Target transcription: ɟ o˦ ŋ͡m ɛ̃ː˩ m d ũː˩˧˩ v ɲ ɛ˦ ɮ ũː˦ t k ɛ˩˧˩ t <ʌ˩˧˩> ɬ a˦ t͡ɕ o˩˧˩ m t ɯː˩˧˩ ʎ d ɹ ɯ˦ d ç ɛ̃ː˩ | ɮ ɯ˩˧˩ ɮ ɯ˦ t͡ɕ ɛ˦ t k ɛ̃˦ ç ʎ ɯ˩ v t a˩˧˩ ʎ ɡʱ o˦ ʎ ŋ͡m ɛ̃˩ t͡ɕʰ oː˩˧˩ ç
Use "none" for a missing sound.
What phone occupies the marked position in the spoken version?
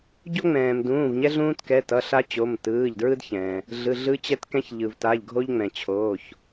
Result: ʌ˩˧˩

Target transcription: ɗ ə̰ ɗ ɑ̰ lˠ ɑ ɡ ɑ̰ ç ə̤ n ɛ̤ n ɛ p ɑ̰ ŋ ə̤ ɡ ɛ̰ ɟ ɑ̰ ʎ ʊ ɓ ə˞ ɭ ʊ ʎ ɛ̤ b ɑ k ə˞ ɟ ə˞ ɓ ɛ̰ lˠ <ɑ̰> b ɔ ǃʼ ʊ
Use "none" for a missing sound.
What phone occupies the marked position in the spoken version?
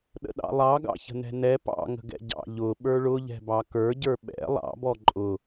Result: ɑ̰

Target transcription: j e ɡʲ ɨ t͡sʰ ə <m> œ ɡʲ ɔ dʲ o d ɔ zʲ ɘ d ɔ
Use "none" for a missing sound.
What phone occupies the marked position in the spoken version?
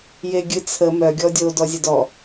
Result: m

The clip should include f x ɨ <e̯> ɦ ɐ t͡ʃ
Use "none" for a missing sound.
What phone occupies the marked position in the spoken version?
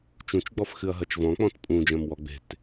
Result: ɐ̯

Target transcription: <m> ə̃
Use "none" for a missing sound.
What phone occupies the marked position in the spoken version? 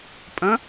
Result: pʼ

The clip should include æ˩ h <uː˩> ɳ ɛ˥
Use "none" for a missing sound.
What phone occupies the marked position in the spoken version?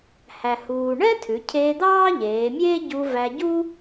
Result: uː˩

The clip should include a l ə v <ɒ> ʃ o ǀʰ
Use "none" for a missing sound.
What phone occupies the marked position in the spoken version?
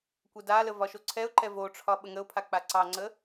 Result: ɒ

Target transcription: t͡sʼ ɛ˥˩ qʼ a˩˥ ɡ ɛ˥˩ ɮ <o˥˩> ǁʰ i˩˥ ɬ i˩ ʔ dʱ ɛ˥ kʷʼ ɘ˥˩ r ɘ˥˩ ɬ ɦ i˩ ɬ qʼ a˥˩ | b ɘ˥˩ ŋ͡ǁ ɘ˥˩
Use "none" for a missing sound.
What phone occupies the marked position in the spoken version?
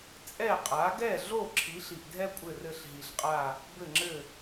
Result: o˥˩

